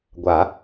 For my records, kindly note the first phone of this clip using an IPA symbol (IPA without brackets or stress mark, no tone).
ɡʷ